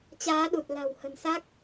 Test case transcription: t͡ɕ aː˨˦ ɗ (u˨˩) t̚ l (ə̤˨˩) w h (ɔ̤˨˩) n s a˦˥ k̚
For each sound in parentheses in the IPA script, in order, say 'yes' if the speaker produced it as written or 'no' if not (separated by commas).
yes, no, no